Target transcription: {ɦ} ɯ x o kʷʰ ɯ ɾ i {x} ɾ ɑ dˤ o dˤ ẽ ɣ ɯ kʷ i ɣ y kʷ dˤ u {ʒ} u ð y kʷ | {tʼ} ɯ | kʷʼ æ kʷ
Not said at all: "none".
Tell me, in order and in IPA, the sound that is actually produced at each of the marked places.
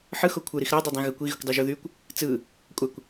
ħ, x, ʒ, t͡s

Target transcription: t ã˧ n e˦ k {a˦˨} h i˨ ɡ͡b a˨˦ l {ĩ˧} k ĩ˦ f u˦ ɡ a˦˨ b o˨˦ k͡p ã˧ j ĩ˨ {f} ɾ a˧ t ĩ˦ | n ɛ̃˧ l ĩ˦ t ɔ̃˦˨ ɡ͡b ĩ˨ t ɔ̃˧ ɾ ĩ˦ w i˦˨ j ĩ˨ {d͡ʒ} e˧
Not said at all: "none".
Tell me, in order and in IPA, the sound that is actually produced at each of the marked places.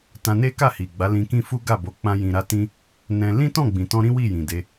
a˦˨, ĩ˧, none, d

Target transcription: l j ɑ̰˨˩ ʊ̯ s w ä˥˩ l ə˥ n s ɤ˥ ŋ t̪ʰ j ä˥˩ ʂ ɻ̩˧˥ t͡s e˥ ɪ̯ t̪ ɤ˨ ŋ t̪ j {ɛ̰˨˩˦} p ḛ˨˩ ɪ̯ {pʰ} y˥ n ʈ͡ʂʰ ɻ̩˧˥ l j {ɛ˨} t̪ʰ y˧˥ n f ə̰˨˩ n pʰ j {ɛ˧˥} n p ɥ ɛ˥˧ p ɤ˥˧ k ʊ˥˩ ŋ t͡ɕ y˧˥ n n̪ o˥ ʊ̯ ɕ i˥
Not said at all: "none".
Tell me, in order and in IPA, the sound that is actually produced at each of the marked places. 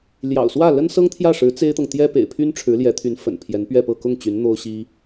ɛ˥, pʰ, ɛ˧˥, ɛ˧˥

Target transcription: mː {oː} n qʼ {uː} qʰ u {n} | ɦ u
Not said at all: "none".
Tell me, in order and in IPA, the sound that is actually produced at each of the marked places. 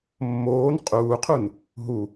oː, uː, n

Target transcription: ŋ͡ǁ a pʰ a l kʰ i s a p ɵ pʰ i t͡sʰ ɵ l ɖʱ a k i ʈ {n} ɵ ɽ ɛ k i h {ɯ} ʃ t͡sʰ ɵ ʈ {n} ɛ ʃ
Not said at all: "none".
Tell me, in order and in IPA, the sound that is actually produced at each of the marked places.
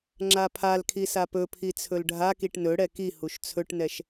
n, u, n

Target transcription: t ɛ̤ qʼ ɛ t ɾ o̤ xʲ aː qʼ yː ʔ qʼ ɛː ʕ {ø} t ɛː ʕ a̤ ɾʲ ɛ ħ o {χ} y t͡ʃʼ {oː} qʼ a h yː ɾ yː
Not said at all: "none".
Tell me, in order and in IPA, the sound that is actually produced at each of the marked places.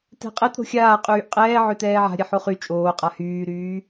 ø, χ, oː

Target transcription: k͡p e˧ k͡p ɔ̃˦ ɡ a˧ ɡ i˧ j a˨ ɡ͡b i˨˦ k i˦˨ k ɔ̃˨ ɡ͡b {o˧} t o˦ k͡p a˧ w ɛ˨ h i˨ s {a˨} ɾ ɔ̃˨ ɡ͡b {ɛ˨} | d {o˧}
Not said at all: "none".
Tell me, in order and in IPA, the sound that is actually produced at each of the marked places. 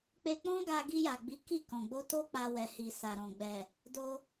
o˧, a˨, ɛ˨, o˧

